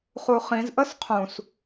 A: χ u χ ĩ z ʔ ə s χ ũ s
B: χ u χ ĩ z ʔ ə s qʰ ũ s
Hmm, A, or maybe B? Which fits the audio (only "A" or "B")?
B